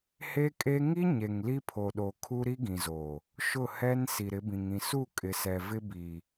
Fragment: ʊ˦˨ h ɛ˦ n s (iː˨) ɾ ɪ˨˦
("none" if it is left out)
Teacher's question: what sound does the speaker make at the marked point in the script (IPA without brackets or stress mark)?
i˨